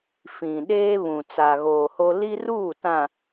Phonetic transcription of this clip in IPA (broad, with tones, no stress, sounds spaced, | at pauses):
f ĩ˨ ɗ eː˦ β ũ˨ t͡s a˨ ɣ oː˨ h o˦ l i˦ r uː˦˨ t ã˨